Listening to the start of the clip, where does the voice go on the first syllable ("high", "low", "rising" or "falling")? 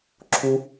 high